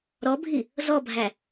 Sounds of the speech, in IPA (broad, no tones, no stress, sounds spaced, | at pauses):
ɾ ɔ bʱ i | z ɔ bʱ æ